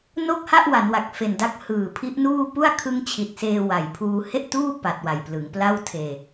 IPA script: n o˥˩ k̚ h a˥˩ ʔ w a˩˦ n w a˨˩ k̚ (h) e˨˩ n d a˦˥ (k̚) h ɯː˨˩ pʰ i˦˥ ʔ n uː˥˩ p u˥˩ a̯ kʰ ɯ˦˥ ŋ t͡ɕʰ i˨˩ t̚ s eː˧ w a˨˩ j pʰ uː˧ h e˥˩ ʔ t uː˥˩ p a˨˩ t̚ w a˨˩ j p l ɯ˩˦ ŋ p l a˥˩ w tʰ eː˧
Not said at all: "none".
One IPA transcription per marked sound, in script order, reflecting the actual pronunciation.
f, k̚

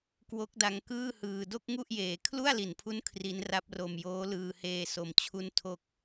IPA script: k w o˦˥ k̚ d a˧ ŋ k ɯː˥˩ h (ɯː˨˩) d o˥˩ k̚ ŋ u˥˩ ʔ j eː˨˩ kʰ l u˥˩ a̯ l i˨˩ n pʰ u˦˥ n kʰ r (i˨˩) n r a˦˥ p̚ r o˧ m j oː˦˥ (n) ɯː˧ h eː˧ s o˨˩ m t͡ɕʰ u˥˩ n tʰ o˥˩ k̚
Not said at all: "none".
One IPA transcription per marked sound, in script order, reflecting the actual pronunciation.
ɯː˧, i˦˥, l

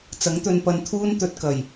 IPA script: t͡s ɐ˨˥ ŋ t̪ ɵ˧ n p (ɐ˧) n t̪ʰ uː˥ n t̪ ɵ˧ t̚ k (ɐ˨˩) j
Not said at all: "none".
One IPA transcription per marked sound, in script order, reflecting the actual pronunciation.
ɐ˧, ɐ˨˩

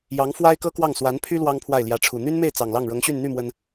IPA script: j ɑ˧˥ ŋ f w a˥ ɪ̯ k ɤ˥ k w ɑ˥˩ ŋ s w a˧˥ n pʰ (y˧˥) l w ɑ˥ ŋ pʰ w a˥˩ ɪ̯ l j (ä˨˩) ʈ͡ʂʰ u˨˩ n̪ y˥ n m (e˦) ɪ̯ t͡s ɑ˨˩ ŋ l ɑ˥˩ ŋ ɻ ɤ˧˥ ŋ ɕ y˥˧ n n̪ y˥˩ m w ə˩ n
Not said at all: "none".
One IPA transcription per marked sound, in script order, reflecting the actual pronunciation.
y˥, ä˧˥, e˥˩

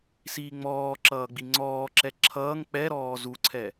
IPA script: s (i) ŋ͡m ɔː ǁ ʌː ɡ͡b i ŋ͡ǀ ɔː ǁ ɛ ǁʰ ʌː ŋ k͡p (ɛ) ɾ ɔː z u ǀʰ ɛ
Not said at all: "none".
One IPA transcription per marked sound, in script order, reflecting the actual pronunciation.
iː, ɛ

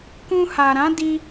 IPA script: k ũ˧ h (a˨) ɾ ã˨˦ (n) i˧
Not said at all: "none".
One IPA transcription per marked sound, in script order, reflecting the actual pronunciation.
a˨, d

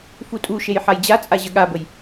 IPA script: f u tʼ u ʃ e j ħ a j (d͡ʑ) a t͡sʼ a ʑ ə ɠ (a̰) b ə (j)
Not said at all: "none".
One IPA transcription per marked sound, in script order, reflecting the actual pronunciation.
d͡ʑ, a, j

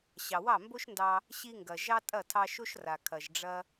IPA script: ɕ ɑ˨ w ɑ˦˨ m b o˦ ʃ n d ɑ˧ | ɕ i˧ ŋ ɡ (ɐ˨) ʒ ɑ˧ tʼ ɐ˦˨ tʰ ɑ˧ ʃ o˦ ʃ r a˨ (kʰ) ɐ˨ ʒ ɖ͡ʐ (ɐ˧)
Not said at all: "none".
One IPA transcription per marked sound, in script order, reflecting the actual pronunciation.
ɐ˨, kʰ, ɐ˧

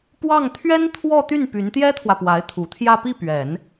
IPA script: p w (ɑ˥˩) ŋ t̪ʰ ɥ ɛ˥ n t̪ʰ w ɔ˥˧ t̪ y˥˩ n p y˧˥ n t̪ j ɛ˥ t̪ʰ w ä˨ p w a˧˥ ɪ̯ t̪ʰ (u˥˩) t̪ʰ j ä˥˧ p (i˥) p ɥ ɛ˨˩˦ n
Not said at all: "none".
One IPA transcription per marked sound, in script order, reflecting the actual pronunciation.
ɑ˥˩, u˨˩, i˥˩

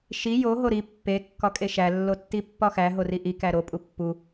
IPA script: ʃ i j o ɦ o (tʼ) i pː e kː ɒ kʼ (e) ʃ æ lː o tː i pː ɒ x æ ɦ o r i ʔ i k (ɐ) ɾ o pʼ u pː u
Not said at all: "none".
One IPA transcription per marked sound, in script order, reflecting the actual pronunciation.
ɾ, e, æ

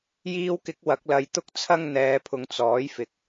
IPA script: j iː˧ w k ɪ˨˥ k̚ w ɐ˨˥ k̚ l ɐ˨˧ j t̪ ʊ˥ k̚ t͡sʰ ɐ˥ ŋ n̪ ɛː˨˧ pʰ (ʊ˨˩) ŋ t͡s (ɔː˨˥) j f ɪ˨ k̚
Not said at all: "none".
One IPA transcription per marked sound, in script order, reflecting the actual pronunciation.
ʊ˨, ɔː˨˥

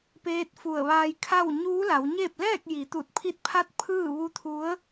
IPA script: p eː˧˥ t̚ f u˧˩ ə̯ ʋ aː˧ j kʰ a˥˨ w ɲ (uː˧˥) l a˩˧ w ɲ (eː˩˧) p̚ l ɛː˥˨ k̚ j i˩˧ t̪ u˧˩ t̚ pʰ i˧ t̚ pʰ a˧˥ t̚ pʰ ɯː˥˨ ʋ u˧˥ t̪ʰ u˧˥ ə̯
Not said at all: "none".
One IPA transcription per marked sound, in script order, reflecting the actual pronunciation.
uː˧˥, eː˥˨

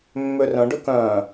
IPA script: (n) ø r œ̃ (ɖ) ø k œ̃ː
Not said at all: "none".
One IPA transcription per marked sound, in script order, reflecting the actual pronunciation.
mː, ɖ

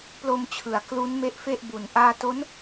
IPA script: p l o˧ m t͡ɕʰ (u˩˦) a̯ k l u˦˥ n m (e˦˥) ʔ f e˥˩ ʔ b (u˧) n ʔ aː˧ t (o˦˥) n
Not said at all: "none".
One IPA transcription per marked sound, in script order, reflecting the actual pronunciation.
ɯ˩˦, e˦˥, u˨˩, o˦˥

